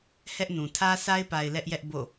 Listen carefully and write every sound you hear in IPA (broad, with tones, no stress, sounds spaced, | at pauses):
h ɛ˦ ʔ n ũ˨ tʰ ä˦ s a˦ ɪ̯ p a˨ ɪ̯ l ɛ˦ ʔ j ɛ˦ ʔ b o̰˦˨